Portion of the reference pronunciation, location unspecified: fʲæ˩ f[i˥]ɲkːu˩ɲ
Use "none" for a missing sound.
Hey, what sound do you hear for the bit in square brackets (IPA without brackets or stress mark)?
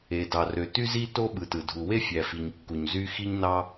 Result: i˩